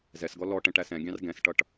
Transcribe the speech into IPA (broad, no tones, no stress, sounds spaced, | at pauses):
z ɛ s ɡ ɔ l ɔ ʈ ɛ̃ ʈ æ s ɛ̃ ɡʲ ɑ̃ r ɡ ɛ̃ s ʈ ʌ ʈ